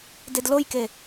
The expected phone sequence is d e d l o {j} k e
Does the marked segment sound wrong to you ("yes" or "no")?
no